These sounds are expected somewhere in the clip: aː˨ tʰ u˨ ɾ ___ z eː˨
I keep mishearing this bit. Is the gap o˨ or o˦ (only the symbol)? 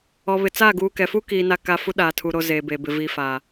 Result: o˨